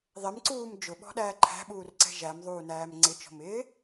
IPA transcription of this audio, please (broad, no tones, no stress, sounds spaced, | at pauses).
ðˤ ɪ m ǀ uː m d͡ʒ ʊ ɓ ɔ̤ ɗ æː ǃʰ æ̤ ɓ uː r ǀ ɛ̤ ʒ æ m ðˤ uː n æː m ŋ͡ǀ ɪ t͡ʃ ɔ̤ m ɪː